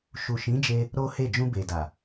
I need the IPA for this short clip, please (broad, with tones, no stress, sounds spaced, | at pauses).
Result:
ʃ u˨ ʃ ĩ˨˦ d͡ʒ e˧ | ɾ o˦ h e˦˨ d͡ʒ ũ˧ b e˨ d a˨